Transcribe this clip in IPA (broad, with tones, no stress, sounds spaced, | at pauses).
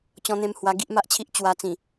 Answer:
t͡ɕ ɔ̃˧ n̪ ẽ˧ m h w a˧ ɡ i˦ ʔ m a˦ ʔ t͡ɕʰ i˦ ʔ t͡ɕ w a˧ t͡s ĩ˨˩